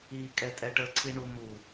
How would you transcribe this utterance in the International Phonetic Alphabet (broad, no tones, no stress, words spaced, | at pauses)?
ikʼɛtʼɛ ʈəǀʰiɳu mu